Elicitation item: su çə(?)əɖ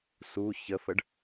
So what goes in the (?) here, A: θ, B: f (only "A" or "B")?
B